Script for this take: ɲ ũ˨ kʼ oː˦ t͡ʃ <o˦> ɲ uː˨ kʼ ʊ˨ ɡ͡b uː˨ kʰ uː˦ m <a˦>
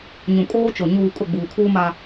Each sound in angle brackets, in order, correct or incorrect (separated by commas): incorrect, correct